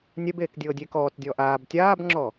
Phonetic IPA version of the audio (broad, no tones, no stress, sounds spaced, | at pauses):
nʲ ɛ b eː k dʲ ɤː dʲ e k ɔː t dʲ ɔː ʔ aː b tʲ aː b ŋ͡ǁ ɔ